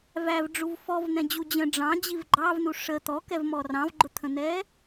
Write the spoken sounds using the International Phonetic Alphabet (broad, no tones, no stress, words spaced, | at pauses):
vævɖ͡ʐuv fɔvn̪ɛ̃d͡ʑu d͡ʑə̃ ɖ͡ʐɑ̃d͡ʑiv ɡ͡ǃɑvnu ʂə t̪ɔkɛvmɔ rɑ̃vɡ͡ǃʊt̪ʰə̃n̪ɛ